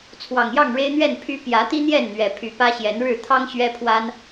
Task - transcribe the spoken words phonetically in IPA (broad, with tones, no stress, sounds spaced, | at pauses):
t͡sʰ w ɑ˨˩ ŋ j ɑ˥˨ ŋ ɻ e˦ ɪ̯ n̪ ɥ ɛ˥˨ n pʰ y˦ p j ä˨˦ t̪ i˦ n̪ j ɛ˥˨ n n̪ ɥ ɛ˨˩ pʰ y˨˦ p ä˦ ɕ j ɛ˨˦ n ɻ ɻ̩˥˨ t̪ʰ ɑ˦ ŋ ɕ ɥ ɛ˦ pʰ w a˦ n